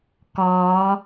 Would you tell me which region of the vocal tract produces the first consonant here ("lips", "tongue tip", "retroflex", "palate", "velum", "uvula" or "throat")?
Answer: velum